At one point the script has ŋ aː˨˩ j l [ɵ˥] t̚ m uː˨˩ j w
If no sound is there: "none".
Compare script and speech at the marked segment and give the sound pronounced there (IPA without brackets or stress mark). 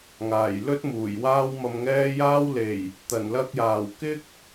ɵ˥